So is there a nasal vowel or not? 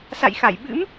no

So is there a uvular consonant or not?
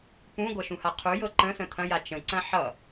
yes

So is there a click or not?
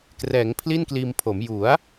no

